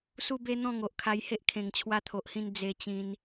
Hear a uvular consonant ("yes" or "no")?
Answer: no